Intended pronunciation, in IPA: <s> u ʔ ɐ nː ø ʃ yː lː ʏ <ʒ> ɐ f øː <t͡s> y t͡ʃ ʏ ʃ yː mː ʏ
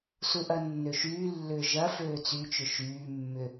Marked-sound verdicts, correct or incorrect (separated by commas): correct, correct, correct